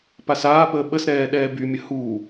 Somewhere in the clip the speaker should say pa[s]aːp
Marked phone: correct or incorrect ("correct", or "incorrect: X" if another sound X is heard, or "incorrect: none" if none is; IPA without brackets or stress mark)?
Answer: correct